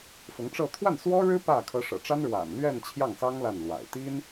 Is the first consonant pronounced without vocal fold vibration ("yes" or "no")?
yes